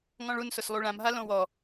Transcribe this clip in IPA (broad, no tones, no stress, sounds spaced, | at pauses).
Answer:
ŋ ɔ̃ ɭ u n s ʊ s lˠ u ɭ ã m ɦ a l õ w ɔ